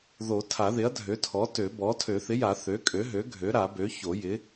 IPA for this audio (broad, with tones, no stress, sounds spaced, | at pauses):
ð o˨˩˦ tʰ a˨˩˦ ð ɪ˩˥ ɐ̯ dʱ ø˩˥ tʰ ɔ˩˥ t ø˨˩˦ b ɔ˩˥ tʰ ø˨˩˦ θ ɪ˩˥ j a˨˩˦ θ ø˩˥ kʼ ø˩˥ ɦ ø˩˥ ɡʱ ø˩˥ ɾ a˨˩˦ b ø˩˥ ç o˨˩˦ j ɪ˩˥